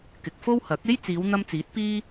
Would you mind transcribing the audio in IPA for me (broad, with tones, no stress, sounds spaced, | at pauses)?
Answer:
k ɪ˨ k̚ f o˥ w h ɐ˨˥ k̚ e˥ j t͡s iː˨˧ w n̪ ɐ˧ m t͡s iː˨˥ t̚ p iː˥